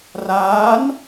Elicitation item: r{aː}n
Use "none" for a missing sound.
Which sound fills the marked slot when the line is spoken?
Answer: aː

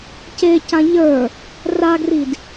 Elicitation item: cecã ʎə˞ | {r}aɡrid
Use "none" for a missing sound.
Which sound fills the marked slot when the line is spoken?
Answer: r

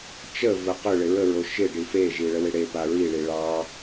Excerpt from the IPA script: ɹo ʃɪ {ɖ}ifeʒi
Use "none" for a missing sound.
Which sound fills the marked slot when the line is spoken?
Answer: ɖ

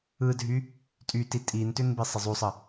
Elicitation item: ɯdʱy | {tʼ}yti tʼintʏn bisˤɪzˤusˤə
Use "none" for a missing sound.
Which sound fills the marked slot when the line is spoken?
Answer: tʼ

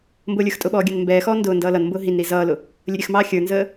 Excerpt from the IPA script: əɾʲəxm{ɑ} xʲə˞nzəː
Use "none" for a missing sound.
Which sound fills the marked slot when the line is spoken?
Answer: ɑː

